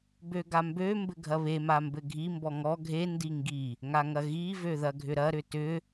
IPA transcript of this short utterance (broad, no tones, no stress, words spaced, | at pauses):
bøɡambø mbɘɡʱɐβe mambɘɡʱi mbɔŋɔ ɡʱe ndiŋɡi | ŋaŋɐɣi vøðɐɡʱʏɾɐ ɾʏtʏ